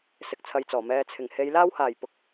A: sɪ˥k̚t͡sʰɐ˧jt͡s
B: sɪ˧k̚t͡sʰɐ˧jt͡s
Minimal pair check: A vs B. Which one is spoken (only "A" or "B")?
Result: B